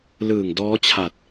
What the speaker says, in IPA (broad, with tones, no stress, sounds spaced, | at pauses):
l ɯː˨˩ ŋ d ɔː˦˥ t͡ɕʰ a˨˩ t̚